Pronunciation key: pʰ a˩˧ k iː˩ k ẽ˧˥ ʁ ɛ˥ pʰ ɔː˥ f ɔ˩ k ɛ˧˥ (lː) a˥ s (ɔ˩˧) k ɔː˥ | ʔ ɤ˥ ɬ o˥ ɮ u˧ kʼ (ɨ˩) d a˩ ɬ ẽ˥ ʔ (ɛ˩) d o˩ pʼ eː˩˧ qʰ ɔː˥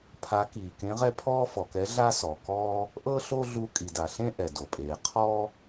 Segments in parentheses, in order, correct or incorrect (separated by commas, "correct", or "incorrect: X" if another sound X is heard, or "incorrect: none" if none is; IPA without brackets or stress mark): incorrect: ɮ, incorrect: ɔ˩, incorrect: i˩, correct